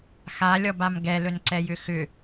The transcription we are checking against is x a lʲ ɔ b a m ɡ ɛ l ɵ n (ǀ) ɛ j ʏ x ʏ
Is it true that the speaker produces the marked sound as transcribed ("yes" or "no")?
yes